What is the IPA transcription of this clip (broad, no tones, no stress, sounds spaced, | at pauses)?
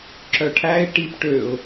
ǁ œ ʈʰ æ ɪ̯ ʈ i p ʈ ø ʊ̯